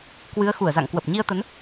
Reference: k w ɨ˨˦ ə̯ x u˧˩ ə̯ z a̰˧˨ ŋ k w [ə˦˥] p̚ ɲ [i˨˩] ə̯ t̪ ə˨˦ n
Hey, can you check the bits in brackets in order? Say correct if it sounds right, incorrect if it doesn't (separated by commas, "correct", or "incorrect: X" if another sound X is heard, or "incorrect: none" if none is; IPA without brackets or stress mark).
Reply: incorrect: ə˨˩, incorrect: i˧